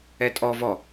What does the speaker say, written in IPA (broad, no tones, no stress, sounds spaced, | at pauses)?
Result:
ɛ tʼ ɔ v ɔ